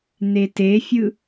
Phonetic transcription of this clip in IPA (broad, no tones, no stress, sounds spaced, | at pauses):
n̪ e t e fʲ ɯ